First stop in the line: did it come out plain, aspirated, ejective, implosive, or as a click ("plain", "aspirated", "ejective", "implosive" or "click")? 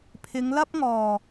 aspirated